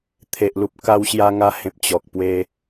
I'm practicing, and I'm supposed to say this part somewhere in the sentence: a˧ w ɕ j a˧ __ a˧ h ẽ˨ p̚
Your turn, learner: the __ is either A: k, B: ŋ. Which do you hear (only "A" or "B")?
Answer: B